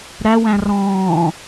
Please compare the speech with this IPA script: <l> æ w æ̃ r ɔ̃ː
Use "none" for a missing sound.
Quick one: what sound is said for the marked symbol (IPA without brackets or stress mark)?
ɾ